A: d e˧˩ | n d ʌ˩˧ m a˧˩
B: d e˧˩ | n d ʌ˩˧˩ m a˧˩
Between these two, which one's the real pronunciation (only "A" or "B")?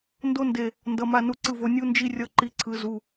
B